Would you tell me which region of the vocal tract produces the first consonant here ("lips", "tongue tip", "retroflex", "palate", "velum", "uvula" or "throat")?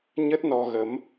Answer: palate